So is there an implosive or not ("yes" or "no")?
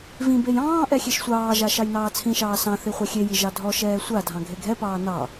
no